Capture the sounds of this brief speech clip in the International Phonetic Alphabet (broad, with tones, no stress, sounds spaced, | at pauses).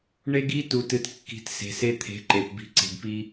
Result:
ɳ e˦ ɡ i˦ t u˨ t ɨ˨ t kː i̤˨ t s e̤˨ s e˦ t̪ʰ e̤˨˦ ǃ e˨ p b i̤˦ ǀ e̤˨ ɡ p i˦